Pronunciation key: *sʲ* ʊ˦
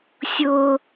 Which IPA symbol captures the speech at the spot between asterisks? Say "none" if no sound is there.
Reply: sʲ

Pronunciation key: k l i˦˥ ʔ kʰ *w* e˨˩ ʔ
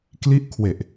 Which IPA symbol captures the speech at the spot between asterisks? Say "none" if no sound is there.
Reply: w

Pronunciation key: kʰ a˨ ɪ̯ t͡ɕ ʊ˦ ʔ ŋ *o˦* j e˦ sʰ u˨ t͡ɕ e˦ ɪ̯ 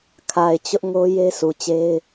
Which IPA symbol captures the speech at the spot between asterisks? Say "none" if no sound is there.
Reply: o˦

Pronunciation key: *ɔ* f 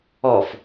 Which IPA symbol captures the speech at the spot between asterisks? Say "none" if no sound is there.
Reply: ɔ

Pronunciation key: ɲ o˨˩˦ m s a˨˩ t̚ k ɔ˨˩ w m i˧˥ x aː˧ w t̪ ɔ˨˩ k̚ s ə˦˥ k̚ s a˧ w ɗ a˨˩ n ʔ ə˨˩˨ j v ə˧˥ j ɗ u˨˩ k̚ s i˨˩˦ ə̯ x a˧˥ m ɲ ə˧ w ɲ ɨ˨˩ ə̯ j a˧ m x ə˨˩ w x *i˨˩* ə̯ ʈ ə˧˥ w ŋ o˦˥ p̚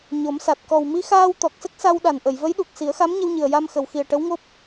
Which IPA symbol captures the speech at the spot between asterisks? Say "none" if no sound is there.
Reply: i˨˩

